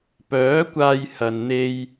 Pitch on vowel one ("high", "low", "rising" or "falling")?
rising